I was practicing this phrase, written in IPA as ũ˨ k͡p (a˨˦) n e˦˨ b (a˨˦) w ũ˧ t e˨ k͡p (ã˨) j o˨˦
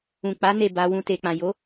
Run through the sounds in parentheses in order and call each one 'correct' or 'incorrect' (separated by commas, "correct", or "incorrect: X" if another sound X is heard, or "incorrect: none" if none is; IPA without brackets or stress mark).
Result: correct, correct, correct